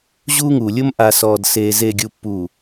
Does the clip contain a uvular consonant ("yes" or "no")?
no